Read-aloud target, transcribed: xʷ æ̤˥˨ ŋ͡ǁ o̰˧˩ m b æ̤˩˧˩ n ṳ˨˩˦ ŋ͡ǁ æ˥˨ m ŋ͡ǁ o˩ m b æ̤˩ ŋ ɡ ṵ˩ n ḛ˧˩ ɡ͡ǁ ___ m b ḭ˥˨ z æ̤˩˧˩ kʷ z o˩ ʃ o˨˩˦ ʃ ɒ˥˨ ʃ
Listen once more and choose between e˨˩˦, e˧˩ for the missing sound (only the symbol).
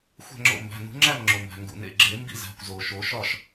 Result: e˨˩˦